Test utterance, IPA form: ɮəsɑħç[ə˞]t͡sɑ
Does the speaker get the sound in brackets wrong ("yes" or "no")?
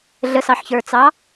no